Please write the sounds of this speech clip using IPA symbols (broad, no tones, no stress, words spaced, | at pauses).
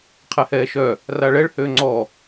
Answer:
qʰɛhɛːʃœ | raɭɛɭ høːŋ͡ǀɔ